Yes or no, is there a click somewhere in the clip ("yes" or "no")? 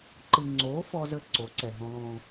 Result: yes